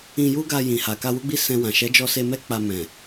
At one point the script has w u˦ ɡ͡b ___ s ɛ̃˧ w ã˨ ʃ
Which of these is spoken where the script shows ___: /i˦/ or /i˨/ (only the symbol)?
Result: i˦